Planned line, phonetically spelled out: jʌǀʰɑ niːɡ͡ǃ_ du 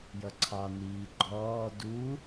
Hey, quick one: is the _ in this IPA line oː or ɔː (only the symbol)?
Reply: ɔː